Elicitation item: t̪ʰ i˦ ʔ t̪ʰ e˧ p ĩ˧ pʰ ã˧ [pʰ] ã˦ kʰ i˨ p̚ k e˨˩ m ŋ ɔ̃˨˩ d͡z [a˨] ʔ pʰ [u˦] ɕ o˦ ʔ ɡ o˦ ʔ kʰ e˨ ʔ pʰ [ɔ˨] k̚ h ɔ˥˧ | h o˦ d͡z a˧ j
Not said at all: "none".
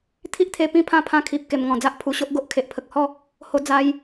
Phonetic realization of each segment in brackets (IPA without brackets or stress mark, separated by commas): pʰ, a˦, u˨˩, ə˨